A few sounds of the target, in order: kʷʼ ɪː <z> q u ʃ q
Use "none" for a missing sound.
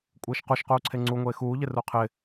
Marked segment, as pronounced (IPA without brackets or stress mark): ʃ